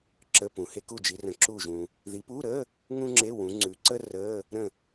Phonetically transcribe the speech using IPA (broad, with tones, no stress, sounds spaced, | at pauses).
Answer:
ǁ ə˧˥˧ p ũ˨ h e˥ k u˦˨ d͡ʒ i˨˦ r ə̃˨˦ ǁ uː˦˨ ʒ ũ˨ | ð i˨˦ p uː˧˥˧ ɾ əː˧˥˧ | ŋ ũ˥ ŋ͡ǁ e˧˥˧ w ũ˨˦ ŋ͡ǀ ʉ˨˦ ǀ əː˥ r əː˧˥˧ | ɾ ə̃˦˨